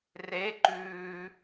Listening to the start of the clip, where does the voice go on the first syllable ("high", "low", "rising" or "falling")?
rising